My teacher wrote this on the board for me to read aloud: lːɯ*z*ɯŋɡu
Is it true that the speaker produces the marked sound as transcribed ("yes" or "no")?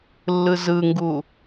yes